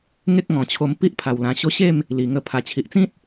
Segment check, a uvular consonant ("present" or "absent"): absent